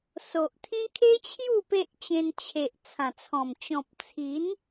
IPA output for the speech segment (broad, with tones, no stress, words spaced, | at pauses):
so˨ʔt̪ʰĩ˦ kʰe˦t͡ɕʰju˥˧ pe˦ʔt͡ɕẽ˧nt͡ɕʰe˨ʔ t͡sʰã˨˩t͡sʰɔ̃˨˩m t͡ɕɔ̃˨p̚t͡sʰi˨˦n